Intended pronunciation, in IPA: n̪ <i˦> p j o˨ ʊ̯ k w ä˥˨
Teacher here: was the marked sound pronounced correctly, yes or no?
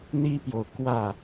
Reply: yes